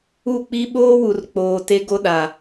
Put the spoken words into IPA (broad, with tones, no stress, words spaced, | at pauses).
u˦˨k͡pi˦ ɓoː˦wu˨rk͡poː˨ te˦ɡo˦ɗa˨